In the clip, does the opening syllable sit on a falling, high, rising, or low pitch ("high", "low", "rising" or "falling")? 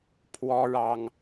high